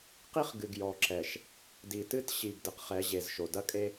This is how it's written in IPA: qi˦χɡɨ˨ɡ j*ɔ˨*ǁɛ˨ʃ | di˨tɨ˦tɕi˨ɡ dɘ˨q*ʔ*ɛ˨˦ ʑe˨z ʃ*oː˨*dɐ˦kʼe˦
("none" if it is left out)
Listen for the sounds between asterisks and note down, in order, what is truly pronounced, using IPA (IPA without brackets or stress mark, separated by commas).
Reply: ɔ˨, χ, o˨